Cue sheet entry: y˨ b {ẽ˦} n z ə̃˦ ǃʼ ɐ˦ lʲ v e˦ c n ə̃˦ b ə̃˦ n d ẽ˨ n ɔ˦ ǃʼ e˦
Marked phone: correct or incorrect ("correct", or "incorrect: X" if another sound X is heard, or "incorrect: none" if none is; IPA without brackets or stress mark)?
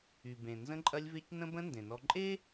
incorrect: ẽ˨